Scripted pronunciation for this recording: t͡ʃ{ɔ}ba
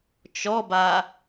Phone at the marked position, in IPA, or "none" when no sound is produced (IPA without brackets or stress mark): ɔ